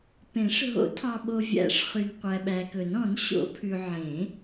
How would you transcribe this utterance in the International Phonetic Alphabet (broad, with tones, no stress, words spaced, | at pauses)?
pẽ˨˩˦ʂ ɦo̰˨˩˦tʰɑ˨ɓo˨ vʲæ̰˨˩˦ʂχy˨n qʷæ˨ɓæ˨kɵ˨˩˦n ɔ̃˨˩˦n ɕo̰˨˩˦pʰʉ˨ ʕẽ˨˩˦